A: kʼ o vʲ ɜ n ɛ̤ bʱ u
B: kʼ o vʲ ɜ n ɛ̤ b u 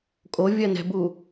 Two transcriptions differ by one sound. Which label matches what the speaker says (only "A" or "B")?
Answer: B